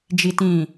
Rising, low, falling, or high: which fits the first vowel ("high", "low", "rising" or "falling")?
low